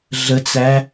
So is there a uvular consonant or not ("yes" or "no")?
no